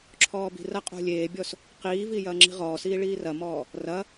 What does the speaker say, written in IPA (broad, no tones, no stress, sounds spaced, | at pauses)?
ǁʰ ɔː b i̤ r ɐ qʼ o̤ lʲ eː bʲ ɔ s | q iː v i j ɐː ŋ͡ǁ i̤ ʁ ɔː s iː ɭ iː r ɐ m ɔː | r ɐ